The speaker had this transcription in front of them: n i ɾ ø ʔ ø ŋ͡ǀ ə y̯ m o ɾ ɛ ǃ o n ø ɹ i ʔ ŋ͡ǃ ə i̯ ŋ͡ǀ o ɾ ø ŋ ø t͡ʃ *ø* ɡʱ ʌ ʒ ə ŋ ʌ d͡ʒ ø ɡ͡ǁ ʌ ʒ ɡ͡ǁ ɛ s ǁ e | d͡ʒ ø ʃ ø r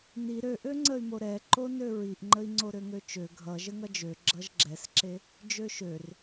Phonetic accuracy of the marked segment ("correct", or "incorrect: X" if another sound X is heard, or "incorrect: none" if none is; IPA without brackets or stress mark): correct